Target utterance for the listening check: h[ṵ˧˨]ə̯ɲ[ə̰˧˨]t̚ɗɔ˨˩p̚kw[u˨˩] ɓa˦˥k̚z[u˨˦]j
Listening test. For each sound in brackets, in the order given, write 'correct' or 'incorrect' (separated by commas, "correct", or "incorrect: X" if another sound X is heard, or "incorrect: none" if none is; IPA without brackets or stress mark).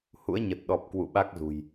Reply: incorrect: ṵ˧˥, incorrect: ə˨˩, incorrect: ṵ˧˨, incorrect: ṳ˨˩